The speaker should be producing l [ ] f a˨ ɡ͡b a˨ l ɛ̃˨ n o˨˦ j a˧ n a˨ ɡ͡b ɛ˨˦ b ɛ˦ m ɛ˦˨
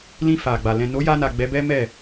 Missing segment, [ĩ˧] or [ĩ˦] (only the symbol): ĩ˧